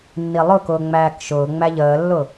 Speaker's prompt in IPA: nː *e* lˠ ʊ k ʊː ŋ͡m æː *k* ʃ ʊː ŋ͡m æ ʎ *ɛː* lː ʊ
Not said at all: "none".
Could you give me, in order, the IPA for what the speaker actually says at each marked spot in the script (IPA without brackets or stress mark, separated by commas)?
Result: i, k, əː